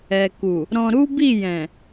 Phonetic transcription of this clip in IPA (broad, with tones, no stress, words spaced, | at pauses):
ɛ˨ ku˨ | ɾɔ̃˧ɾu˦ bi˦˨jɛ̃˨